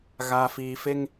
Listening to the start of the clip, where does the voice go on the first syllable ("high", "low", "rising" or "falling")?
low